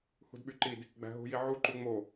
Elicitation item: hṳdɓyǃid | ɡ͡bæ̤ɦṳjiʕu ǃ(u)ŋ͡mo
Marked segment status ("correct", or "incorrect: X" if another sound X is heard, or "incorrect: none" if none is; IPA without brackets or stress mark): correct